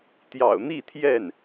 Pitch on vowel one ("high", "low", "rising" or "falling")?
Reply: low